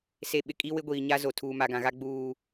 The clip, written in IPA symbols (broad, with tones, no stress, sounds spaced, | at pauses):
s e˨ ɓ ɪ˨ kʼ i˦ w ɪ˦ ɡʷ iː˨ ɲ a˦ z o˨ tʰ uː˨ m a˨ ɡ ã˨ ɣ a˦ ɡ͡b uː˦